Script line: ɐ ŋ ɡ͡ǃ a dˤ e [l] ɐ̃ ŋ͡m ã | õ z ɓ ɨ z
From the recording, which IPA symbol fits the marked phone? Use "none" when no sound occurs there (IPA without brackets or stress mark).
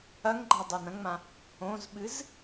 n